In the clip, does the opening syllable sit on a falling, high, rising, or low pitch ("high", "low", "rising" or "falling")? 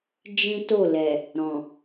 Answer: high